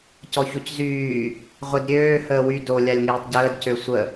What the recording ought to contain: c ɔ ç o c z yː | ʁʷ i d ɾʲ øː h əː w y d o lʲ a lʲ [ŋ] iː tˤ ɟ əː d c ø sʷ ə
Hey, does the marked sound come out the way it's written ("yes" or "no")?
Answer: yes